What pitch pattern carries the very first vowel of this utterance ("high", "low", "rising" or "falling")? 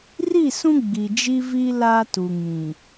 falling